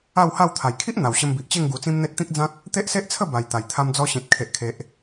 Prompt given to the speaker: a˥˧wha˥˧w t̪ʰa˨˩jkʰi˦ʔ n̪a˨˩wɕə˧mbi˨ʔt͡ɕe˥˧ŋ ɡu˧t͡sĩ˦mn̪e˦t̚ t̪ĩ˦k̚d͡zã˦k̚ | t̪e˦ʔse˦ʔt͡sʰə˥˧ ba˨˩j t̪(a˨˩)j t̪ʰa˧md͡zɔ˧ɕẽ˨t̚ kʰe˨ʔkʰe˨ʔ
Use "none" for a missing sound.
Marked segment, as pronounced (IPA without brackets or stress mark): a˨˩